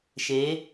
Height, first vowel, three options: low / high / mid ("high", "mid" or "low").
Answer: mid